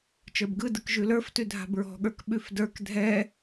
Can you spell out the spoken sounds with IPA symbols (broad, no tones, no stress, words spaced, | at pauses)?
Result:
t͡ʃə˞bɡɯdɯk ʒʉlə˞ftʉ dʱa̤bɹɔ̤ɠə˞k ɓʉfdə˞k dʱɛ